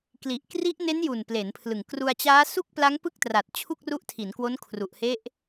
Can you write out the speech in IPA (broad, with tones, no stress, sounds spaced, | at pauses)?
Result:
k l i˨˩ ʔ k r i˦˥ ʔ n e˦˥ n j u˨˩ n p l e˩˦ n pʰ l ɯ˨˩ ŋ k r u˧ a̯ t͡ɕ aː˦˥ s u˥˩ k̚ p l a˦˥ ŋ p ɯ˥˩ k̚ t r a˨˩ t̚ t͡ɕʰ u˥˩ k̚ r u˦˥ ʔ tʰ i˩˦ n k w o˦˥ n kʰ r u˨˩ ʔ h e˦˥ ʔ